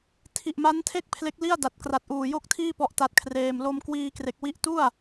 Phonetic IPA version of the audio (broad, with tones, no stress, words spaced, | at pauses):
tʰi˨˩ʔma˦˥ntʰe˥˩k̚ pʰle˦˥k̚li˥˩a̯da˨˩t̚kra˨˩t̚ ʔuː˨˩jo˥˩k̚tʰiː˥˩ pɔ˥˩ʔta˦˥t̚kʰreː˧m lo˧m kwiː˧kre˨˩k̚wi˦˥ʔ tu˥˩a̯